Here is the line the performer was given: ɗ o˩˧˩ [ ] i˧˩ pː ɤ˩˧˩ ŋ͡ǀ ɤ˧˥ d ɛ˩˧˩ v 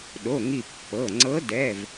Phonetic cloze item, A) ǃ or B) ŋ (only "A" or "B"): B